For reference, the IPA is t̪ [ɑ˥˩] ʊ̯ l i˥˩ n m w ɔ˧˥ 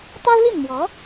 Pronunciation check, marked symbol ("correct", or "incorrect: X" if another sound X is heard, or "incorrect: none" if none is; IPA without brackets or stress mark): incorrect: ɑ˥